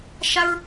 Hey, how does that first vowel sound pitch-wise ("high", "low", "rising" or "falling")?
high